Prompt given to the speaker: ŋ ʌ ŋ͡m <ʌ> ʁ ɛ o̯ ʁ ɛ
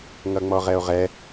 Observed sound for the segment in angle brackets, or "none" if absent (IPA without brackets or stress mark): ɔ